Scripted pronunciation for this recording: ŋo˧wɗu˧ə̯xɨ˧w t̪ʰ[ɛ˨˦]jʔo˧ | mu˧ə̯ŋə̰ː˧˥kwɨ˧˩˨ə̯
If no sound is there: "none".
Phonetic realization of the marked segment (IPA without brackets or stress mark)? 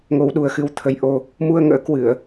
ə˨˦